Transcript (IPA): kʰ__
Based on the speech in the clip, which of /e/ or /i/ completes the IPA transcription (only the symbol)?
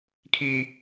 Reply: i